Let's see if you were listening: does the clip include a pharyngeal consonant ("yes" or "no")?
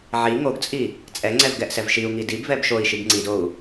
yes